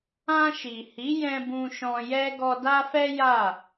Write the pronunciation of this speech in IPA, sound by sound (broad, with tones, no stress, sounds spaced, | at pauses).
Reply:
ã˧ ʃ i˨ h i˨˦ j ɛ̃˧ b ũ˧ ʃ ɔ̃˧ j ɛ˦ ɡ ɔ˧ d a˦ f ɛ˦ j a˦˨